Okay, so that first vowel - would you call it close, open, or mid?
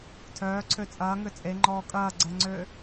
mid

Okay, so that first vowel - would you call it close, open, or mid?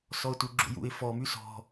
mid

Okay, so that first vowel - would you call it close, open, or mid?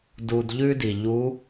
close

